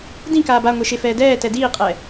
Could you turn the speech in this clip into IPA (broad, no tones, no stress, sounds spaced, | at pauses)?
d ĩ k aː b a ŋʷ e ʃ e f ɛː d ɛː t ɛ d iː qʼ ɛ